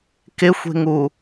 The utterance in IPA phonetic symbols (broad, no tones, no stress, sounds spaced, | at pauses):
k ɪ xʷ e̤ ŋ u